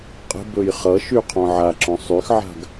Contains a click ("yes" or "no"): yes